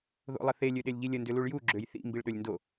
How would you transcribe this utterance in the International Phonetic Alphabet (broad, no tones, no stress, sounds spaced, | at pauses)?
ð o̰ lˠ ə θ e lʲ ø ɗ e lʲ ʎ i lʲ ə n d ʏ l u ɭ j u ɡ͡ǁ ø j θ ḭ m b i ɭ ɗ ø lʲ n d o